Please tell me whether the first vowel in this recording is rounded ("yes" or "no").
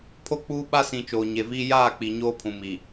yes